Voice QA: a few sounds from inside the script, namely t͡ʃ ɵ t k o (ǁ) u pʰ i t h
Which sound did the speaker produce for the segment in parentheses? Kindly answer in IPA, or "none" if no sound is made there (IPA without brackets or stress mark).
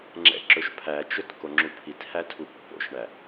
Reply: ŋ͡ǁ